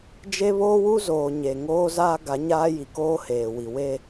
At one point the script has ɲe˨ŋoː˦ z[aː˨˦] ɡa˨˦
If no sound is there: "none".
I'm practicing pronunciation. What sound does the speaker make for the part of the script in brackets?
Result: aː˦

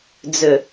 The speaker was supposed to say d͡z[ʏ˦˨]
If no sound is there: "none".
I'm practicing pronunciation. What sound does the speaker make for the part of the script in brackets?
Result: ʏ˨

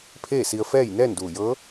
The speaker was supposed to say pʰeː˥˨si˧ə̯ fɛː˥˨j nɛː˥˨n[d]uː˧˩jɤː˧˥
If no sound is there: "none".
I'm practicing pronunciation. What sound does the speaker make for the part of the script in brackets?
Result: d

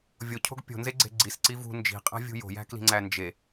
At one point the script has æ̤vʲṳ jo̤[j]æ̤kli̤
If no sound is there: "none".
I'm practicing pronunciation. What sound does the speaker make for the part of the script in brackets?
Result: j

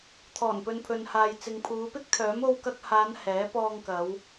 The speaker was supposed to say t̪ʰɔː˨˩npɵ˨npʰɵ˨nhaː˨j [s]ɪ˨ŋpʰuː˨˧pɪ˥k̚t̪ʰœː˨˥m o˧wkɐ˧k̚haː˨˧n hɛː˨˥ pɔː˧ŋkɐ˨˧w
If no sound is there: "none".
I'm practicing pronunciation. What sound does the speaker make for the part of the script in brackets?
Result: t͡s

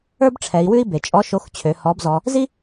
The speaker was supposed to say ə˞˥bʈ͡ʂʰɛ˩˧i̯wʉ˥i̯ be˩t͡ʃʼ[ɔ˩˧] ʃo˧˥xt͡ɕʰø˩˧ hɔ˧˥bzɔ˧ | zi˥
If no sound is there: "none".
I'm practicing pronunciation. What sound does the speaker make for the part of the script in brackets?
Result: ɔ˧˥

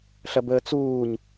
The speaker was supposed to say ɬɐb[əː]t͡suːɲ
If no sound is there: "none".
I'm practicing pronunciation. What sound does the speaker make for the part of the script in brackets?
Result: əː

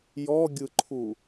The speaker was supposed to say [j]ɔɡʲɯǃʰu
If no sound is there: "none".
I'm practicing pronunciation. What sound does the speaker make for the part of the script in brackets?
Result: j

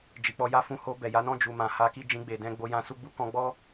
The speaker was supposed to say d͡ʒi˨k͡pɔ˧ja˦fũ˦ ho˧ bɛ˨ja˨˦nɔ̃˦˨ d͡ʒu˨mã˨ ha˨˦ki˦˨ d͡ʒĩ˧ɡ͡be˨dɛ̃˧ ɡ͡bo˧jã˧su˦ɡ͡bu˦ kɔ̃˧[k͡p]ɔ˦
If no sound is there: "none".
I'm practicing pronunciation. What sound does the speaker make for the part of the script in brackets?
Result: ɡ͡b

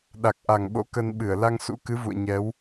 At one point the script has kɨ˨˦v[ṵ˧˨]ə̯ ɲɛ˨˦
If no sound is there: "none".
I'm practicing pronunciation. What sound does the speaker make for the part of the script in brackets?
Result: ṵ˧˨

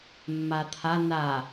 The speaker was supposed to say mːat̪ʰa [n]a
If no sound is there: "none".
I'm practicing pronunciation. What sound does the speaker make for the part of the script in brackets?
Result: n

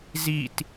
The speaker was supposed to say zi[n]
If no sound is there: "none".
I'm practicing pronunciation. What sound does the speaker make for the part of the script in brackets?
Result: t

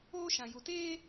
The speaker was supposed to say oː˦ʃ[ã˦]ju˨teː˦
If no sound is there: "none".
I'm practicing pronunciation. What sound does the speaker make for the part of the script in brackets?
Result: ã˨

